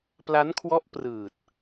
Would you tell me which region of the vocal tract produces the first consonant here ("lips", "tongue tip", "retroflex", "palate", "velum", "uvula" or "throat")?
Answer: lips